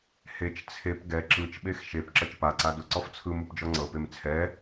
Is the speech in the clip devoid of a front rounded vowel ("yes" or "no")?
yes